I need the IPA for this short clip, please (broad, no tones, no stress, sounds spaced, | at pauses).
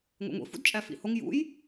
ŋʷ ḛ ŋʷ ḭ f ṵ d t͡ʃʼ æ f ḭ h o ŋ j ṵ j